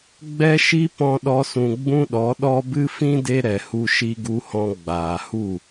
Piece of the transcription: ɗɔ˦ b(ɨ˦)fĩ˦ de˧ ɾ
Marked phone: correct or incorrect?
correct